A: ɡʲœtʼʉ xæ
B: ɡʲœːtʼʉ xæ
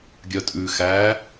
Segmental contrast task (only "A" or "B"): A